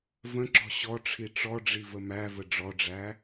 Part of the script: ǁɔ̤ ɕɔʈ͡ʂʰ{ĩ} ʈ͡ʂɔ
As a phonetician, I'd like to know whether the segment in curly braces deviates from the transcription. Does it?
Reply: yes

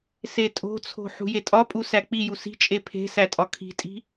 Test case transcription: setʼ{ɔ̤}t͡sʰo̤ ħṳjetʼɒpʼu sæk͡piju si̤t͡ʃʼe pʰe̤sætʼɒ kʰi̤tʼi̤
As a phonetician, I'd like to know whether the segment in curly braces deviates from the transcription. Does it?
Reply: yes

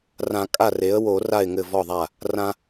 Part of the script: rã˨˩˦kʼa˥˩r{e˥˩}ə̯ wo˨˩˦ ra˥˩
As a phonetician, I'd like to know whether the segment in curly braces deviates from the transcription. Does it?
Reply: yes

